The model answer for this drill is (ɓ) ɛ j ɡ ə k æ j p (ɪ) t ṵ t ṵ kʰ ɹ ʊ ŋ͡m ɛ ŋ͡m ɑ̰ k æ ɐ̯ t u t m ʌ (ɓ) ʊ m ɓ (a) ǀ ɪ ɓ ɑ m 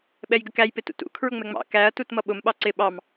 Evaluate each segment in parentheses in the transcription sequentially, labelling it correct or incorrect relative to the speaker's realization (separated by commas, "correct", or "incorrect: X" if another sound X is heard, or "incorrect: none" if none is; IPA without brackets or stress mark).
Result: correct, correct, correct, incorrect: ɑ